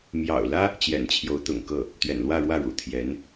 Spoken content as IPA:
m j ɑ̰˨˩ ʊ̯ l ä˥ | t͡ɕ j ɛ̰˨˩ n t͡ɕʰ j o˧˥ ʊ̯ t̪ ʊ̰˨˩ ŋ k ɤ˥˩ | t̪ ɥ ɛ̰˨˩ n l w ä˥˧ ɻ w ä˥˩ ɻ ṵ˨˩ t̪ʰ j ɛ˧˥ n

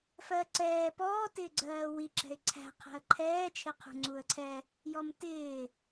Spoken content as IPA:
f ɜ ǀ ɛː p ɔː t ɪː ɡ͡ǀ ɜː w i ǁ ɛ̤ ɪ̯ ǀʰ æ̤ qʰ æ̤ ə̯ ǃʰ ɛː t͡ʃʰ ɪ qʰ ṳ ŋ͡ǀ u ə̯ ǀʰ ɛ | j ɔ m t ɪː

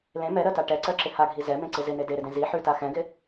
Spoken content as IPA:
l ẽ m ɛ ɾ ɜ t a ʈ ɛ ǀ ɜ ǁ ɪ h a ɡʱ i z ɛ m ẽ ǀ ɪ z ɪ n e d e ɾ ɪ d ẽ z i ħ ʉ t a x ɛ̃ ɡ ɪ

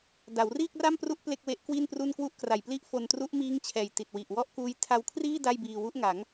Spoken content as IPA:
d a˩˦ w r iː˥˩ k̚ r a˥˩ m p r u˦˥ ʔ p l e˥˩ k̚ w e˦˥ ʔ k w i˥˩ n p r u˥˩ n k w u˦˥ ʔ k r a˨˩ j p l i˦˥ ʔ f o˧ n t r u˦˥ ʔ m iː˦˥ ŋ t͡ɕʰ ɛː˨˩ j t i˨˩ t̚ w i˨˩ ʔ w ɔ˥˩ ʔ k uː˦˥ j tʰ a˧ w kʰ r iː˥˩ d a˥˩ j b iː˧ w u˦˥ ʔ ŋ a˩˦ ŋ

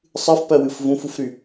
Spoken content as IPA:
sˤ ɨ f p ɜ w ɨ f v ũ f u f ɾ y

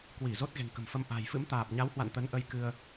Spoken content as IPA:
k w i˧˩ z o˦˥ t̚ ɣ e̤˨˩ ŋ k ə̤˨˩ m f ə˧ m ʔ a̤˨˩ j f ɨ̰˧˥ m t̪ aː˨˩ p̚ ɲ a˨˦ w h w a̰˧˨ n t̪ ə˨˦ n ʔ ə˨˦ j k ɨ˧ ə̯

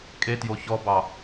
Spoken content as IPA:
kʼ e t j o ç ɔ b ɑ

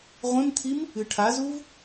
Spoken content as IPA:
ʁʷ ẽ m t̪ʰ i m | ɨ ʈʰ a z u v

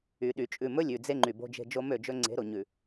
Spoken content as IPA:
y˨ ɗ y˨ t͡ʃʼ ʉ˨ m ɵ˦ lʲ ʉ˨ d͡z e˦ ŋ͡ǃ y˨ b o̤˦ d͡ʒ e̤˦ d͡ʒ o˦ m ø˦˨ d͡ʒ ɵ˦ ŋ͡ǀ e̤˨˦ ɾ o˨ ɲ ʉ˨

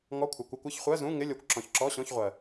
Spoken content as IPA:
ŋ ɔ˧˥˧ kʷʰ ɪ˨ kʷ ɯ˧˥˧ kʷ ɪ˧˥˧ ç χʷ ɜ˧˥˧ z ũ˧˥˧ ŋ ɪ˧˥˧ lʲ ɔ˨ kʷ ǁ ɔ̃˨ ç ǁ ɔ˧˥˧ ɕ ɔ̃˧˥˧ ç ʁʷ ɜ˨

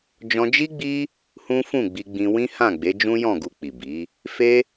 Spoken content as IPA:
d͡ʒ ɔ̃˧ d͡ʒ i˦ ɡ͡b i˦ | h ũ˦ f ũ˦˨ ɡ͡b i˧ ɡ͡b ĩ˧ w ĩ˦ h ã˦˨ ɡ͡b e˨˦ d͡ʒ ũ˦ j ɔ̃˦˨ ɡ u˧ k͡p i˨ b i˨˦ | f e˦

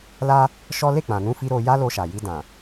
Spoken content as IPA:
l a˧ | ʃ ɔ˦ l e˦˨ k͡p ã˨ n ũ˧ f i˧ ɾ o˧ j a˦ l o˧ ʃ a˨ j i˧ d ã˨

